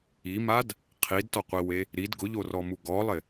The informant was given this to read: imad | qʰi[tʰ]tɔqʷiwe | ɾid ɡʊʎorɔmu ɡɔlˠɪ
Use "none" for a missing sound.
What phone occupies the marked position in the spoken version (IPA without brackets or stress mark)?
d